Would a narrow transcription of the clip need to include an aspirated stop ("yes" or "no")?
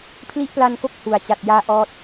yes